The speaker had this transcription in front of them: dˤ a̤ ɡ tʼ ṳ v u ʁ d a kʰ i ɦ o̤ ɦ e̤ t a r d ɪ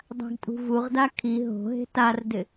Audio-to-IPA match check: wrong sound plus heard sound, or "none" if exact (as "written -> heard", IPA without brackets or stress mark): none